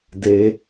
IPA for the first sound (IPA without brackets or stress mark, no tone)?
d